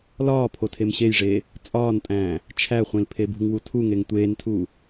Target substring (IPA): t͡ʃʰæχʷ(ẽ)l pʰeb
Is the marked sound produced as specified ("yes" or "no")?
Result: no